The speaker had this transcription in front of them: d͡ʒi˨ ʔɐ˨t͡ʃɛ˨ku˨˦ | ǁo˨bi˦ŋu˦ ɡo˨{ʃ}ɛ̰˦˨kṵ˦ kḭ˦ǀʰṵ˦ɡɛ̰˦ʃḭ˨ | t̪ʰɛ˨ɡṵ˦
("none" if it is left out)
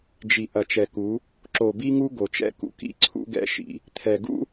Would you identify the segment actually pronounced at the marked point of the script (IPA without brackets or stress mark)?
t͡ʃ